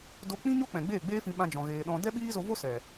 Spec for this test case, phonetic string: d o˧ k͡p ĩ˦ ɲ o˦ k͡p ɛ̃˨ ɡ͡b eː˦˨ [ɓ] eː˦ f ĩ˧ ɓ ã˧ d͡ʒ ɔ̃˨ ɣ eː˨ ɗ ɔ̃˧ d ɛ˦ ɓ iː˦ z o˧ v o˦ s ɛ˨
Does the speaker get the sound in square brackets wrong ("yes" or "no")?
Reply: yes